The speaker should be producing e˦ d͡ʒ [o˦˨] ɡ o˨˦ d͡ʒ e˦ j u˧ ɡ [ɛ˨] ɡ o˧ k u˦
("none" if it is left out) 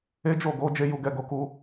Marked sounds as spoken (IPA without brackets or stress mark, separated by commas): o˦˨, ɛ˧